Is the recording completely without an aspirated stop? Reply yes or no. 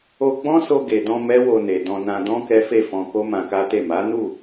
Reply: yes